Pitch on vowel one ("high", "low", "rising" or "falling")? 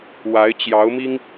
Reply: rising